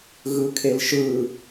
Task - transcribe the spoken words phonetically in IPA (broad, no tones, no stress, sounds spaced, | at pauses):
ɣ ɯ kʰ e l ʃ ɯ